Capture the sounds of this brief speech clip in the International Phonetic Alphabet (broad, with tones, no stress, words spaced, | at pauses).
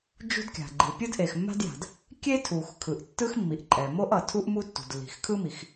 d͡ʒṳ˥dkʲa̤˩ɡ͡ǃi˩ pʲɯ˥dʔe˩xmːa̤˥dja̤˩d | kʲe˥tʰu˩x kʰɯ˩ʔtːɯ˥xmːi˩ʔǃʼɛ˩ mo˥ʔʌ˩tʰu˥ʔ mu˥tːṳ˩d lːi̤˩xkʰɯ˥mi˩x